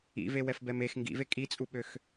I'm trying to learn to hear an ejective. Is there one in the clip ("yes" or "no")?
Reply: yes